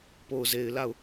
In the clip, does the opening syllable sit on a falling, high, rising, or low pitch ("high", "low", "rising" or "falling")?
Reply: low